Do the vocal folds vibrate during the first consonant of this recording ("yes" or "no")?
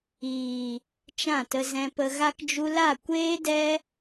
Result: no